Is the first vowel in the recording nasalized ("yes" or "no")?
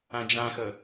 yes